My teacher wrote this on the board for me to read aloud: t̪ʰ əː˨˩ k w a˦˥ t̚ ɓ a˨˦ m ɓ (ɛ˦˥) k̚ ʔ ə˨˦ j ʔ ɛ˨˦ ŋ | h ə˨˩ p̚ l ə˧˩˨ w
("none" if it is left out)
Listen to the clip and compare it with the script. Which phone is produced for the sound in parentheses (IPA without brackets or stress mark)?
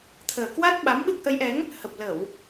ɨ˦˥